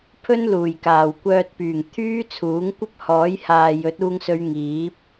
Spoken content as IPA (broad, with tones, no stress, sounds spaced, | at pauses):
pʰ ɵ˥ n l uː˨˩ j k aː˨˩ w kʷ œː˧ t̚ p yː˨˩ ŋ t̪ʰ yː˥ t͡sʰ uː˨˥ ŋ kʷ ɐ˥ p̚ h ɔː˨˥ j h aː˨ j ɵ˨˥ t̚ uː˧ ŋ s ɵ˨˧ ɥ ŋ iː˨˥ p̚